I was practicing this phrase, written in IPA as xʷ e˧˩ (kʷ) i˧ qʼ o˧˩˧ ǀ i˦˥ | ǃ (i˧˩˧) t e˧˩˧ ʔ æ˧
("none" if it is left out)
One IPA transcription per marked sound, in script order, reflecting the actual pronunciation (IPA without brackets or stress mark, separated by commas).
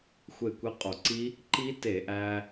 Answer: kʷ, i˦˥